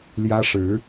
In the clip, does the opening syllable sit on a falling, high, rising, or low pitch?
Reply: high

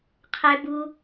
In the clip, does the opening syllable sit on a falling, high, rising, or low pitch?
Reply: high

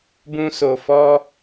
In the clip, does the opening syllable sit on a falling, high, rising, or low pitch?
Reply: high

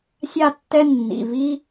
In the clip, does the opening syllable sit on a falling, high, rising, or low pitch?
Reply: falling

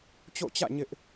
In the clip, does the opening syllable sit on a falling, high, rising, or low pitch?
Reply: falling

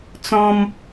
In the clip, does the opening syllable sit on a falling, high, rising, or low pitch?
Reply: high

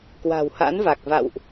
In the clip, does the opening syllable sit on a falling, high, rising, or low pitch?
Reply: low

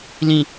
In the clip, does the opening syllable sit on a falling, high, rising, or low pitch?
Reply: low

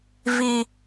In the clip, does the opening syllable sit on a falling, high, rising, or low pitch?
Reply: low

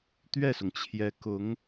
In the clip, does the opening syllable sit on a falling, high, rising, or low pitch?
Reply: falling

